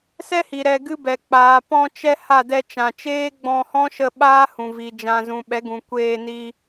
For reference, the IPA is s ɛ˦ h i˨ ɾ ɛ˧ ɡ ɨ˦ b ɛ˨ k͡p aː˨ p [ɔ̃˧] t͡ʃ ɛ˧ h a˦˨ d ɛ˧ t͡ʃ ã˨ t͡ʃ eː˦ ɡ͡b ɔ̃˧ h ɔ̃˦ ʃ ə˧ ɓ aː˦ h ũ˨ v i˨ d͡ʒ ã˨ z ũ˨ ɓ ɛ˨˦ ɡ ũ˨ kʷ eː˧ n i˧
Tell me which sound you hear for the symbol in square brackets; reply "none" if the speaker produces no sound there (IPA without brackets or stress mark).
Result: ɔ̃˧